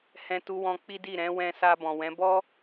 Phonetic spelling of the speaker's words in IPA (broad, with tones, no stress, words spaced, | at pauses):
hɛ̃˧tu˧wɔ̃˧ k͡pi˦di˦˨ ɾɛ̃˨˦ wɛ̃˧sa˧ bɔ̃˨wɛ̃˨˦bɔ˦